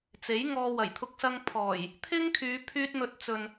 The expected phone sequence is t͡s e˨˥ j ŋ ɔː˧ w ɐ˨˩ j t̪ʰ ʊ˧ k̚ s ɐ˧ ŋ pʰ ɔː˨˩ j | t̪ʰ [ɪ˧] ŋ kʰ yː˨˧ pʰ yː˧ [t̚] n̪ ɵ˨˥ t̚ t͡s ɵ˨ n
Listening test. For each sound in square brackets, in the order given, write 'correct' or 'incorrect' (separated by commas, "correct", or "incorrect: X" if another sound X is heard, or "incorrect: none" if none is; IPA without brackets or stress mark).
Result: incorrect: ɪ˥, correct